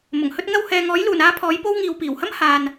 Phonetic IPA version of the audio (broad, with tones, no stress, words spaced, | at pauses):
mʊ˨˩ŋhɵ˥t̚ŋɐ˥w hɛː˨ŋɔː˨˥jluː˨˩n aː˥pʰɔː˨˥jpo˥w ŋiː˨wpiː˨˩whɐ˥m haː˨n